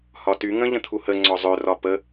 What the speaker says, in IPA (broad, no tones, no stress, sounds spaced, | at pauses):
h ɒ t y ŋ ə̃ ʎ ə̃ t̪ʰ u h ə ŋ͡ǀ ɔ zˤ ø r ɒ p ə